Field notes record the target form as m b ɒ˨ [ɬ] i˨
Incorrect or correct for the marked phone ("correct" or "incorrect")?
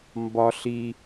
correct